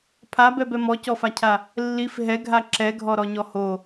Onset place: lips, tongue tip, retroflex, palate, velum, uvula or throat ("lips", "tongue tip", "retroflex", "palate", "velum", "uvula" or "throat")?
lips